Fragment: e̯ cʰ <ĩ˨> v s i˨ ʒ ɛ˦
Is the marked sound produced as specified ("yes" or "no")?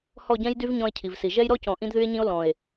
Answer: no